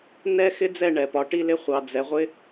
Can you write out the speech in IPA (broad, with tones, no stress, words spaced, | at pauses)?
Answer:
nɛ˦ xɪ˦d͡zɛ˦˨ ɳɛ˨pɒ˨ ʈi˦lɪ˦χʷɑ˨ d͡zɛ˨ʁʷɪ˦